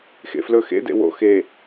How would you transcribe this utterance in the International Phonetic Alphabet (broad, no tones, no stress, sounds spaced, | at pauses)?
x ḛ f l ɵ x ḛ d ḛ w o̰ x e